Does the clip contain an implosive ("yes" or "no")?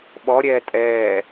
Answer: yes